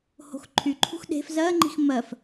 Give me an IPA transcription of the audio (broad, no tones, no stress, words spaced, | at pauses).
ho̤xǃʰyǃʰṳx ɗe̤f zɜŋ͡ǃi̤x mɜf